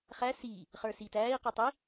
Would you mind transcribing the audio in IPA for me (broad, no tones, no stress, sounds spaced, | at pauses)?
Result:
χ æ s iː | χ ə˞ s iː t æː i̯ q ʊ tˤ i